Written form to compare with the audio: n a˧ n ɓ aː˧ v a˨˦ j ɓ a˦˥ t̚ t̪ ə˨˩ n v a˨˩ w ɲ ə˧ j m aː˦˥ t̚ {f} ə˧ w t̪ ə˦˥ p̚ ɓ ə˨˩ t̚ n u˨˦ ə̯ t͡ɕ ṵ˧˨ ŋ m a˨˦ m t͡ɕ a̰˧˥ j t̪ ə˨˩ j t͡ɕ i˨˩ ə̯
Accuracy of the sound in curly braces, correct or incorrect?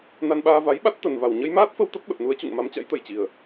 correct